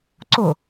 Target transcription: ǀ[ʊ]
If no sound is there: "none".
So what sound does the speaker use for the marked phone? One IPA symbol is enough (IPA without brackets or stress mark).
ʊ